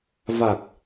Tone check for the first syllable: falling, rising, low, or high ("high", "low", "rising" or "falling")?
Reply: low